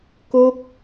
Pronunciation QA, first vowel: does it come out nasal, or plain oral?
oral